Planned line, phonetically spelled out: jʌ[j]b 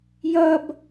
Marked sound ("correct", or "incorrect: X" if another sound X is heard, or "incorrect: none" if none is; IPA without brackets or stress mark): incorrect: none